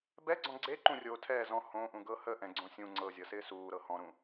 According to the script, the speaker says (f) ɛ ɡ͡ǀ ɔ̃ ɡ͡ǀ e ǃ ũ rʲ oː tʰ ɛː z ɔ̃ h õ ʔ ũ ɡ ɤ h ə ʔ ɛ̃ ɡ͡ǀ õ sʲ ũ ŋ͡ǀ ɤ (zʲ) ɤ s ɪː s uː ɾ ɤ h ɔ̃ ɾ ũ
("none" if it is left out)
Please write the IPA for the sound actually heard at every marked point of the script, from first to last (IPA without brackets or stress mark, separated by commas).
b, zʲ